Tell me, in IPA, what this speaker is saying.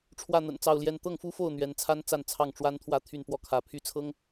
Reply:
ʈ͡ʂʰwä˥˩n̪ə̰˨˩nt͡sɑ˥˩ʊ̯ljɛ˥n t̪ɤ˥˩ŋfu˥fo˥˩ʊ̯ n̪ɥɛ˧˥nt͡sʰa˥nt͡sa˥˧n t͡sʰɑ˥˩ŋʈ͡ʂwa˥nt̪ʰwä˥˧ t̪ʰy˥˧npwɔ˥˩kʰä˧˥ pʰy˥t͡sʰɤ˥ŋ

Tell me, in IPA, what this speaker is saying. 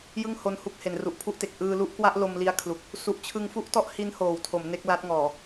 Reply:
jɯ˥˩ŋho˧nhu˦˥k̚ he˩˦nru˨˩ʔpʰu˥˩ʔte˨˩k̚ ʔɯː˧lu˦˥ʔkwa˥˩ʔlo˧m li˦˥a̯kʰlu˨˩k̚ | su˨˩ʔt͡ɕʰɯ˧ŋfu˥˩ʔtɔ˥˩ʔ hi˦˥nhoː˩˦wtʰo˩˦m ne˦˥k̚la˦˥t̚ ŋɔː˨˩

